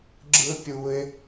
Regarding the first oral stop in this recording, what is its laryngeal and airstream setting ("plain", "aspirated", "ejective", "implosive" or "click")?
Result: click